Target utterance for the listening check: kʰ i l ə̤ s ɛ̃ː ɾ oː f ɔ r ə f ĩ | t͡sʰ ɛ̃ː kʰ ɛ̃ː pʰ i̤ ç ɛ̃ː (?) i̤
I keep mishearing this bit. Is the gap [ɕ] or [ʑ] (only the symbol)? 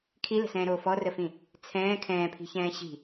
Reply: ɕ